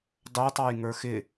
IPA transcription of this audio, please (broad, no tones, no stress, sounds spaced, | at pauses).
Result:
dˤ ʊː tˤ ɑ j ŋ ə˞ x ɪ